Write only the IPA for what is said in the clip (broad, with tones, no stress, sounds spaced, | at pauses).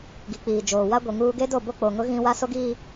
ɡ i˨ k͡p iː˨ d͡ʒ oː˨ w a˦ ɡʷ i˨ ŋ uː˦ ɡ e˦ d o˦˨ b o˦ k͡p o˨ ŋ ʊ˦ ɣ ĩ˦ w a˦ s o˦ ɡ iː˦